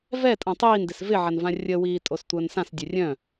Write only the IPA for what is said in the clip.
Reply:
v ɛ tʼ ã tˤ iː n d ɪ s v ɪ ʕ a n v ã rʲ ə w iː tʼ o s tʷ əː n s ã s dʲ œ rʲ œ̃

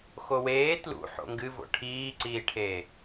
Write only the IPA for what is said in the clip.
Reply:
x o w eː t l ṵ ħ o̰ ŋ ɡ ɨ v o̰ ʈʰ iː ǀ iː ʈʰ eː

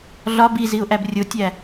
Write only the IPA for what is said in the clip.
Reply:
ɮ ɒ b i z i ʊ̯ ʔ æ b rʲ o tʲ æ

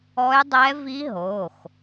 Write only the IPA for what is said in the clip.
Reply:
ɔ˦˥ j dˤ ɛ˦˥ v i˦˥ ɦ o˩˧˩ x

